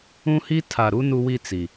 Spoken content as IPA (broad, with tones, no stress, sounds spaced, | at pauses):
ũ˦ h i˦ tʰ a˨ ɾ u˦ n u˦ w i˦ t͡s i˨